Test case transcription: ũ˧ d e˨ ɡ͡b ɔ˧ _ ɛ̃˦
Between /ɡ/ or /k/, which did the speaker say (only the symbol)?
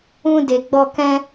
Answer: k